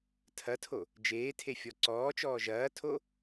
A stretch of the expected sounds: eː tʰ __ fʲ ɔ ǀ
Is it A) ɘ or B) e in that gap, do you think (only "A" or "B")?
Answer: B